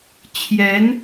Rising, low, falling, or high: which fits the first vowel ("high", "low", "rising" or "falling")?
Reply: rising